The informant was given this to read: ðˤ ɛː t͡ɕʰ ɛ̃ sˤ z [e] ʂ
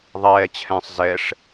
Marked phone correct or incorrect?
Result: incorrect